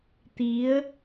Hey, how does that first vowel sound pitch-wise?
rising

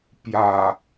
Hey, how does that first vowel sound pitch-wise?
low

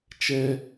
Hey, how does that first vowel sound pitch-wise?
high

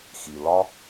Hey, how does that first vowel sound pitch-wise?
low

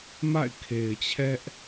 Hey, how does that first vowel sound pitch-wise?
falling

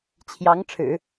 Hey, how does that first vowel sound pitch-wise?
rising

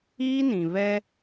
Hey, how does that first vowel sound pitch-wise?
high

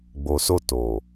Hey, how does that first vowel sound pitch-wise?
low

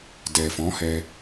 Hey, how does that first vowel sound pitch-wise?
low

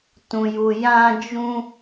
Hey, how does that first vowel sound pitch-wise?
high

